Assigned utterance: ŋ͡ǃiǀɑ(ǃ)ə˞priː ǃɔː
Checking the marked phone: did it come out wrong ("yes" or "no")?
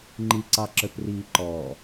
yes